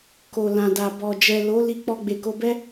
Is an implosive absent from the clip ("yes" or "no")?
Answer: yes